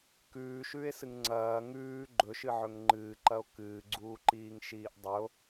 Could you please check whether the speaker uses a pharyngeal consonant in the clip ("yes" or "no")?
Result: yes